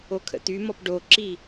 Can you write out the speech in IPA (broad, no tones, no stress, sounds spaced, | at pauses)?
o kʰ ə̰ t̪ y m ɔ p ɖ o ǁ i